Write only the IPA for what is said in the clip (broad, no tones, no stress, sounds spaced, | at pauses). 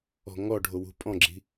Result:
ɔ̤ ŋ ɔ ɖʱ o w ṳ pʼ ɔ̃ ɡ͡ǁ i̤